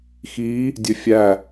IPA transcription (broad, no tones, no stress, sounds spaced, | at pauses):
x i | dʲ ø fʲ æ